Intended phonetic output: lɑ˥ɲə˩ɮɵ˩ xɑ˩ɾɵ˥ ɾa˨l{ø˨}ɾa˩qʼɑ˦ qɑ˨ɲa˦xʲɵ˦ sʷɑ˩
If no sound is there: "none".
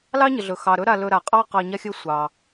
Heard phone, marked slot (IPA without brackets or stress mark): ɵ˨